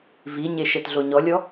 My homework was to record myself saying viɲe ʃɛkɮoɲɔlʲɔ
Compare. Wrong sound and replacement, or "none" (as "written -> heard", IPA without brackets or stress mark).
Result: k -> t